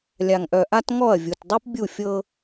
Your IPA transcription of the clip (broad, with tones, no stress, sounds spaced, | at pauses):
lʲ a˨ ŋ ʔ œ˨ ʔ a˦ t ŋ ɔ˦˨ ɐ̯ vʲ u˨ t dˤ ʉ˦ p bʲ u˦˨ fʲ ɤ˦